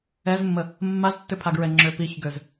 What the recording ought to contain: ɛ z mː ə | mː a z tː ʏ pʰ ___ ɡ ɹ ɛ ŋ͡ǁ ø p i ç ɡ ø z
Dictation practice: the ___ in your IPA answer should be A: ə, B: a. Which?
B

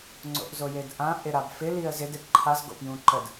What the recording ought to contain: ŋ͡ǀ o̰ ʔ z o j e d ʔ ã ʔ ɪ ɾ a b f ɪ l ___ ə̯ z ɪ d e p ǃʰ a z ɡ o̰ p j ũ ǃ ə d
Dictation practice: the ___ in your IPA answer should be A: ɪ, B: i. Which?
B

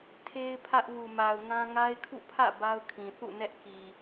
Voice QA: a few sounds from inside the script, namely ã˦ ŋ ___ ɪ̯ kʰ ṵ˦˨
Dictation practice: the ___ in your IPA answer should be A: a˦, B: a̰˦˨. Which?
A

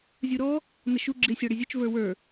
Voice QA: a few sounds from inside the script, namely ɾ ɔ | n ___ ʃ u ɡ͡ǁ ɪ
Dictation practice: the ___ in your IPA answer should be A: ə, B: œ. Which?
A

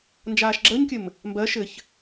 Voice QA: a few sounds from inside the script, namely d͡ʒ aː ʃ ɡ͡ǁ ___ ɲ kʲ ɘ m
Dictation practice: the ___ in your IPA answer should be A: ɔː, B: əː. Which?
B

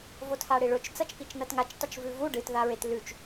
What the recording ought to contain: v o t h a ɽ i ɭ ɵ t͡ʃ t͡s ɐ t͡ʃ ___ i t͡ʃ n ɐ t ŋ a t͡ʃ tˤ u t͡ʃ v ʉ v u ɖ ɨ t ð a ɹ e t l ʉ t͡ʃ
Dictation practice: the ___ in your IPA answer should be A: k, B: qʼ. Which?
A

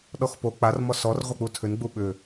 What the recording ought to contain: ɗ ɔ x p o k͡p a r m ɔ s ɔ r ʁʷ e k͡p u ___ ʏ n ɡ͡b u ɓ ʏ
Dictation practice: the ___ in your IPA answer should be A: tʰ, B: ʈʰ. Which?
A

